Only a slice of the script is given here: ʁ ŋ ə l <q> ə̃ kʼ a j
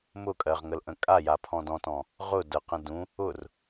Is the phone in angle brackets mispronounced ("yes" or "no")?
yes